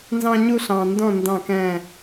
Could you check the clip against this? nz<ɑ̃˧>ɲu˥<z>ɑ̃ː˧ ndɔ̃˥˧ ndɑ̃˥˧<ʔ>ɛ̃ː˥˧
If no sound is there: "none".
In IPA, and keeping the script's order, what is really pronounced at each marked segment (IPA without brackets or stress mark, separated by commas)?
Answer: ɑ̃˥, ɬ, k